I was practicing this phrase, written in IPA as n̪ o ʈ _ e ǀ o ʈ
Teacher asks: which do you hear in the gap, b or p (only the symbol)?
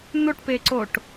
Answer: p